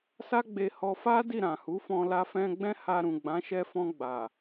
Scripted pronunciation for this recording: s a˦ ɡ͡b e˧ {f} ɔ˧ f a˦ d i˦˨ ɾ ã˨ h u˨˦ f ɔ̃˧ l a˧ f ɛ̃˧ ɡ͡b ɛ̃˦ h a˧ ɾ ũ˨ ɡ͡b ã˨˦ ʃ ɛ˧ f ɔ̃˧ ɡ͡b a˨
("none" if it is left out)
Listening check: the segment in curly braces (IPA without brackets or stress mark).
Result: h